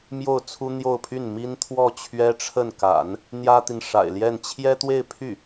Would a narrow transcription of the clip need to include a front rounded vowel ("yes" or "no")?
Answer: yes